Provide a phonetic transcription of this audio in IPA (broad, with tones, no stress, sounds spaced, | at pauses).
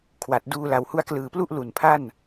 kʰ w a˨˩ t̚ d uː˧ l a˩˦ w h u˦˥ a̯ k l ɯː˨˩ p l u˥˩ ʔ l u˨˩ n pʰ a˥˩ n